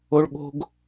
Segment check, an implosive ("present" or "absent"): present